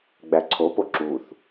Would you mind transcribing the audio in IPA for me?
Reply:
ɡ͡b æ ǀʰ o p o ǁ u θ

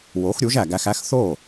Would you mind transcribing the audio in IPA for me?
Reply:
w o˩˥ x ɾʲ u˩˥ ʒ æ˩ ɡ æ˧ x æ˥ x θ o˥˩

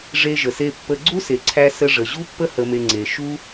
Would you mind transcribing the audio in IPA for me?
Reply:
ʐ e˧ ʒ ə˨ s e˧ pː ə˧ ɡ͡ǀ u˦ s e˨ ǀʰ æ˧ s ə˧ ʐ ə˨ ʑ u˦ pː ə˦ h ə˨ m e˨ ŋ͡ǀ e˨ ʃ u˦

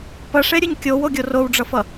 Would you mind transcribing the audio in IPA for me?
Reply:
p ʌ ʂ e ɾʲ ɯ ɲ kʲ o w o ɡʲ o r o w ɖ͡ʐ ʌ f ʌ

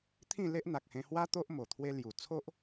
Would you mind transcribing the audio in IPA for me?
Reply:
t̪ʰ ĩ˥˧ l e˦ ʔ n̪ a˨ k̚ h ẽ˧ h w a˦ t̪ o˦ ʔ m o˨˩ t̪ʰ w e˧ l j u˨˩ t͡sʰ o˦ ʔ

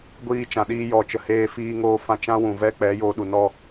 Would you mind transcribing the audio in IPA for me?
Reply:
ɡʷ iː˧ t͡ʃ ã˨ ɗ iː˧ j ɔ˨ t͡ʃ ə˨ h eː˧ f iː˧ ŋ oː˧ f ã˧ t͡ʃ ã˦ w ũ˨ v ɛ˦ k͡p ɛ˨˦ j o˧ ɗ u˨ n ɔ˧

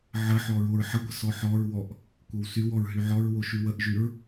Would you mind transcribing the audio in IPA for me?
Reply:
ʕ ə ħ ɔ ɹ o ɹ ħ ə ɡʷ ə s ɔ ħ ɔ ɹ w ɔ ʔ | kʷ ə w s y w ɔ ɹ ɦ y ʕ ɔ ɹ w o ʃ y w ə ʔ ʒ y ɹ

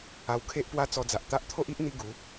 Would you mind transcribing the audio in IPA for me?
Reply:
a˧ w kʰ e˦ ʔ p w a˦ t͡s ɔ˧ d͡z a˨ ʔ t̪ a˦ ʔ t̪ʰ o˦ ʔ i˦ ʔ n̪ i˧ ɡ u˨˦

